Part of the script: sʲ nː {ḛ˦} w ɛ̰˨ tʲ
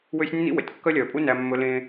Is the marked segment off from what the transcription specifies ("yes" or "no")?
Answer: yes